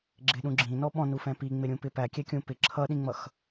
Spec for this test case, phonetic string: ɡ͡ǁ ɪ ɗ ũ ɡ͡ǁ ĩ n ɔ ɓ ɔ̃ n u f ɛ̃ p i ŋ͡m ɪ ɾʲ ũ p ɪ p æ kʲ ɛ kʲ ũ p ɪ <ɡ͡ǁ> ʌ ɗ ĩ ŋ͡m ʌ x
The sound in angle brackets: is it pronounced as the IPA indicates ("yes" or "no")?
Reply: no